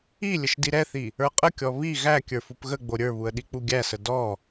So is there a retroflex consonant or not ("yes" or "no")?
no